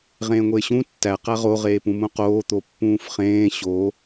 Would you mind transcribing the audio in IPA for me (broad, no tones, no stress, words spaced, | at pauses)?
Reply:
ʁẽːŋʷeːɕũ tːæ qæʁo ʁeːpũmũqoː t̪opːũːfχẽː ɕo